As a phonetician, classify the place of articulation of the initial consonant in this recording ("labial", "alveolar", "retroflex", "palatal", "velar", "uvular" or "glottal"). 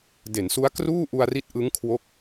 alveolar